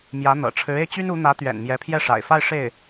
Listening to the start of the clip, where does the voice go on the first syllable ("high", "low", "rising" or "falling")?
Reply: rising